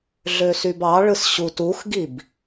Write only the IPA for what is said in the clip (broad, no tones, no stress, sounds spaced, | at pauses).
ɮ ø s y b ɑ ɭ ɯ s ɕ u t u x ɡ i b